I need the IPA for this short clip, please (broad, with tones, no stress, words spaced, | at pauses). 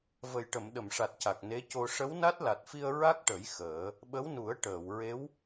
və˨˩jʈə˨˩˨mɗə˨˩˨mʂa˨˩t̚ ca˨˩k̚ne˧˥co˧ ʂə˧˥wna˦˥t̚la˨˩t̚fi˧ə̯ ɹa˦˥k̚ʈə˨˩˦j xəː˨˩˦ | ɓə˧˥wnu˨˩˦ə̯ ʈəː˨˩˨w ɹe˧˥w